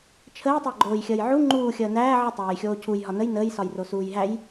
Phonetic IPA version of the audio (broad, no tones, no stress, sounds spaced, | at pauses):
t͡ʃʰ əː tˤ æ ɡ͡ǃ oː j xʲ əː j ʕ u ŋ͡ǃ uː xʲ əː n æː ʕ ə tˤ æː j xʲ oː cʰ u j ɦ ɒ n ə j n əː j s ɒ j r o s uː j ɦ æ j